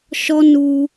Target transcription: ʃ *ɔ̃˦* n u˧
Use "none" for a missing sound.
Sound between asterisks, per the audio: ɔ˦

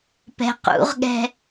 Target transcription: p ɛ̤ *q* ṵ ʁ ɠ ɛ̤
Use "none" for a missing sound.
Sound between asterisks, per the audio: q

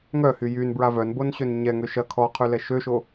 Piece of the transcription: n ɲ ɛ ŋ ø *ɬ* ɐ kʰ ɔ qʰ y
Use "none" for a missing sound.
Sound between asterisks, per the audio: ʃ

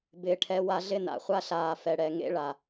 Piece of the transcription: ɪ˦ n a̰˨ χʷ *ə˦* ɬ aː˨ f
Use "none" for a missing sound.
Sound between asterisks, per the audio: a˦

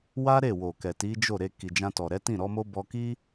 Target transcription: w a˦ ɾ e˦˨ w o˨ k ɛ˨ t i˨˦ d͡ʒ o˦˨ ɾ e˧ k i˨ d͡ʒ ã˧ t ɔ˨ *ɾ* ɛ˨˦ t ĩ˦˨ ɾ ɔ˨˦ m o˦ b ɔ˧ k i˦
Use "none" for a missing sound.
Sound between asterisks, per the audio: ɾ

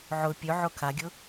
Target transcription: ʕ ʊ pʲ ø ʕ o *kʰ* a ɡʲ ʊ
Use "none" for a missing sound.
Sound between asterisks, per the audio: kʰ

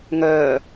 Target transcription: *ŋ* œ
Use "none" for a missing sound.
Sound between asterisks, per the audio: ŋ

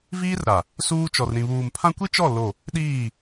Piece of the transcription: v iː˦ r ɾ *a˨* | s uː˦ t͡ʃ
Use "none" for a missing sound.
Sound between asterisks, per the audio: a˨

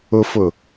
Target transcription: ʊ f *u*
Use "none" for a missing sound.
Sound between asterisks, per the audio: ʊ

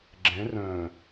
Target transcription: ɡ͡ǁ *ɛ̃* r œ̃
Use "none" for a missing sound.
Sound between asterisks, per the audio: ɛ̃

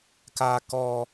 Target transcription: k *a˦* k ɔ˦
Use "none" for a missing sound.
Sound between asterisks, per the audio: aː˦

